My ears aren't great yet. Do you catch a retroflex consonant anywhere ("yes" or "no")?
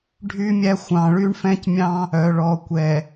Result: yes